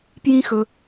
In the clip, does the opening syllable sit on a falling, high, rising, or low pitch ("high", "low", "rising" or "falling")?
high